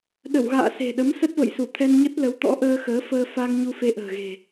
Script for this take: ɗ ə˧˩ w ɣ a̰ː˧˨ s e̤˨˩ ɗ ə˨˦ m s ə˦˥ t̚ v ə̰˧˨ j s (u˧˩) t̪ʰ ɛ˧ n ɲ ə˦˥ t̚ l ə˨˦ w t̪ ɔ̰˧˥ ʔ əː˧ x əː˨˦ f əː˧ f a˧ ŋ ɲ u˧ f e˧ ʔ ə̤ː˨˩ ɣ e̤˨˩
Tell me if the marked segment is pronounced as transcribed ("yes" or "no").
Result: yes